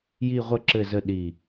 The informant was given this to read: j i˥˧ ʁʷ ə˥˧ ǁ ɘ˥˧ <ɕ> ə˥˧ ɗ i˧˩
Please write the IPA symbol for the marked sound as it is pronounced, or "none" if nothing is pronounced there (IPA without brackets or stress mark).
z